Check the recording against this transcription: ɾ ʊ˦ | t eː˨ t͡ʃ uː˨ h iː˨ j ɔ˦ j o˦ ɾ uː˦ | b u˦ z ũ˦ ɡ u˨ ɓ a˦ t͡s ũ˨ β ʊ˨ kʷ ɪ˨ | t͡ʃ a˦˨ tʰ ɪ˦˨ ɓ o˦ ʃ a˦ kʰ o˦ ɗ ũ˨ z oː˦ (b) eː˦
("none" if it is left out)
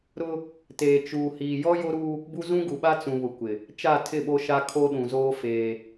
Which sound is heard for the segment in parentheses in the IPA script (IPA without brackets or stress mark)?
f